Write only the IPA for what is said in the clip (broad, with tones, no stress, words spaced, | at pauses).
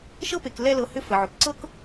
ʃɤ˥pe˩k lɛ˦lɤ˨hʏ˦ fə˩ʕʏ˩k ǀɤ˥k